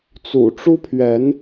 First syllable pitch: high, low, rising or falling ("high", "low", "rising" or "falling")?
low